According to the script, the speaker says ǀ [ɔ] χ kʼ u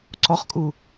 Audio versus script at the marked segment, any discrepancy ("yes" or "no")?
no